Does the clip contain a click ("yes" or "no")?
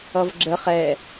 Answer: yes